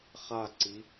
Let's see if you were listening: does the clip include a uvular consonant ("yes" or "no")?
yes